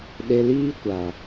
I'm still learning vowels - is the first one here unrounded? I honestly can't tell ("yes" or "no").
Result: yes